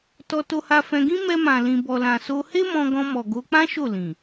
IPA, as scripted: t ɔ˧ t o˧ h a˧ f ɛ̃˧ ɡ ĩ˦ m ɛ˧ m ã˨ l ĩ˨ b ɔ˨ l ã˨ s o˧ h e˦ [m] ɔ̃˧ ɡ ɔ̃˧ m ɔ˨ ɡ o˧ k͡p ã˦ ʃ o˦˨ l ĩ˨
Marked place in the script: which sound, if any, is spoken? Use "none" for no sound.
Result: m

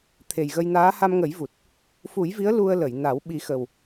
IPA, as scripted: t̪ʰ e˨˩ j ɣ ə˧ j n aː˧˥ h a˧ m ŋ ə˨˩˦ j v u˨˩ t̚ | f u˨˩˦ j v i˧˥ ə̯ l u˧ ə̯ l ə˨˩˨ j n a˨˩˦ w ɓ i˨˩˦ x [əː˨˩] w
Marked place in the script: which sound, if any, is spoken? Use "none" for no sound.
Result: ə˨˩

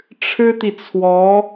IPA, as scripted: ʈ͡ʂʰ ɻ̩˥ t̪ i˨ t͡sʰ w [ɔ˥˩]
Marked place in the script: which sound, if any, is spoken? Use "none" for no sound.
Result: ɔ˧˥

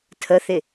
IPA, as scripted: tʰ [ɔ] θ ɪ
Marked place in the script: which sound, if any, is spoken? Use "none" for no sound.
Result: ə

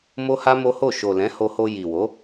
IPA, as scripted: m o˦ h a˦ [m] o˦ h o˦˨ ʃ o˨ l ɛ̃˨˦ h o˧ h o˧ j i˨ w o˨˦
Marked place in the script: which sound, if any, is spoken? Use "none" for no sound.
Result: m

